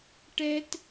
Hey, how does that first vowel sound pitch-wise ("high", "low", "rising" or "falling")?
high